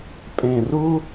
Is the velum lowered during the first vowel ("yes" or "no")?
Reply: yes